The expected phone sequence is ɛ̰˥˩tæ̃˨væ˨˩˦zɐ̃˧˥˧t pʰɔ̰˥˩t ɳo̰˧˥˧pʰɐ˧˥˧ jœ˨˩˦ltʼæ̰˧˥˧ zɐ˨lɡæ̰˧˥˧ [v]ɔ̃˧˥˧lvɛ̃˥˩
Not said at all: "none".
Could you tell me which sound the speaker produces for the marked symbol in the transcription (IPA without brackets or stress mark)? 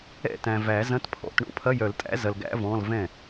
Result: v